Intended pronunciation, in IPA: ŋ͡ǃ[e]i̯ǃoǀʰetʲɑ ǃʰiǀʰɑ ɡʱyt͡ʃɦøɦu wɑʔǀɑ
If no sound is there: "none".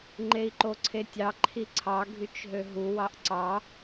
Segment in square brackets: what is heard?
e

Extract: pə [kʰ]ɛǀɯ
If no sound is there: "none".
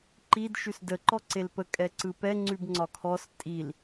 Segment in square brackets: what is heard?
kʼ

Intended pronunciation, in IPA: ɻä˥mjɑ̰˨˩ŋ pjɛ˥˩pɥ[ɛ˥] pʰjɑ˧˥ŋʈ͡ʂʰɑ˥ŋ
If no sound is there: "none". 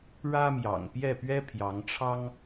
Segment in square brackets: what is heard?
ɛ˥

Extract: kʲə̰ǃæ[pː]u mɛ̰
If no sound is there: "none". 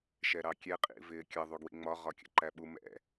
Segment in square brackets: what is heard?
ɓ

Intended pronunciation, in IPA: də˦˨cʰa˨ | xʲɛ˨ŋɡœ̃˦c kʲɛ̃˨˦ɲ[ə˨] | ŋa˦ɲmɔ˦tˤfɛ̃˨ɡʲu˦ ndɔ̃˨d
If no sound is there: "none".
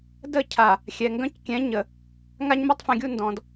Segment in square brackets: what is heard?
ə˨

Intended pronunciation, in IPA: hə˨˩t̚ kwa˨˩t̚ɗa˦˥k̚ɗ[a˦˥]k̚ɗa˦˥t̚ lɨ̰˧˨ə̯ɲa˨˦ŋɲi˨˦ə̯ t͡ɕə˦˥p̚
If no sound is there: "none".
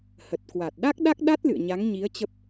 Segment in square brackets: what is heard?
a˦˥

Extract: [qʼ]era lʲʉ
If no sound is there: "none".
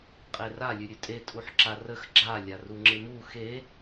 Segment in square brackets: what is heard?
qʼ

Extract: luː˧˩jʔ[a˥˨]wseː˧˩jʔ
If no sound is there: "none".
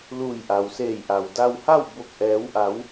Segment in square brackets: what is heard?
a˩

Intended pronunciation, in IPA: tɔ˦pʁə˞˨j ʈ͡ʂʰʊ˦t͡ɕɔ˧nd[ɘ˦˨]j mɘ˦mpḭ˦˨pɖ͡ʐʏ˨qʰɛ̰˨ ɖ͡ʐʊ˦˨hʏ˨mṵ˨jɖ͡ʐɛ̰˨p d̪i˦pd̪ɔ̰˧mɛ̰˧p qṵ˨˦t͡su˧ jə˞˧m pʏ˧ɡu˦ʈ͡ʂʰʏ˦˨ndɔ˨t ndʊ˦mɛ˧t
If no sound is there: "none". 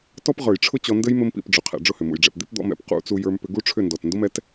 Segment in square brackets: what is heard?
ɘ˦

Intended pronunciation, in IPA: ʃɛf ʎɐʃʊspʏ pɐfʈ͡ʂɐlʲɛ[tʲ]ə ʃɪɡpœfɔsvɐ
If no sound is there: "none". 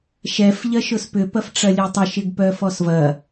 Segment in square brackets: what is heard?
tˤ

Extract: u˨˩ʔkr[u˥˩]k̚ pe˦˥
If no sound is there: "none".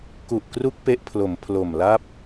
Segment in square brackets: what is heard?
u˦˥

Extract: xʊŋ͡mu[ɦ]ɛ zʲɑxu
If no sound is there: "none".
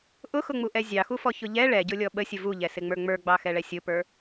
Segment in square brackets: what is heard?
ʔ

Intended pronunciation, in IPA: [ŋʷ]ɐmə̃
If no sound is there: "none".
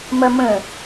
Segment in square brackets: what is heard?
m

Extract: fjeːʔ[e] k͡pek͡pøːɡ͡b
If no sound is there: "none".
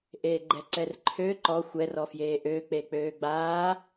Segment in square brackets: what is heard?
ø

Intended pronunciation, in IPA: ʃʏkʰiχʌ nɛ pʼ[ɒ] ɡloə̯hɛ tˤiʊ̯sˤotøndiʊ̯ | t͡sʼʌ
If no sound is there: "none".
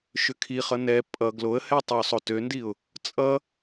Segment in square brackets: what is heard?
ʌ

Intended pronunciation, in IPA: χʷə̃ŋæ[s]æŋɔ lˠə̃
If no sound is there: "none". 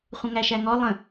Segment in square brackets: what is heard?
ʃ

